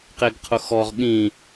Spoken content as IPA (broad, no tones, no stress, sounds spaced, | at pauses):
q e ɡ qʰ ʊ x ɔ ʁ ɠ ĩ